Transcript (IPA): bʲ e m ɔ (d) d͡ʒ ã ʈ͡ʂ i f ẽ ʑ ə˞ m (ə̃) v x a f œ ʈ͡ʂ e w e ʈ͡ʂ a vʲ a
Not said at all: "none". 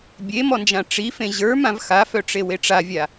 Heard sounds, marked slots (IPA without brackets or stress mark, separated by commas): n, ã